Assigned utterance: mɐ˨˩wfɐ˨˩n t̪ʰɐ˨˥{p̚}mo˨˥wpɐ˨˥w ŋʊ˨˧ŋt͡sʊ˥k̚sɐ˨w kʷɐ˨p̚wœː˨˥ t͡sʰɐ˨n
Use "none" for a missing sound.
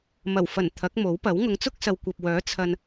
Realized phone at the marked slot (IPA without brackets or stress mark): k̚